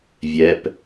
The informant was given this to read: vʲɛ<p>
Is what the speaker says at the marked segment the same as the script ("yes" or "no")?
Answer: yes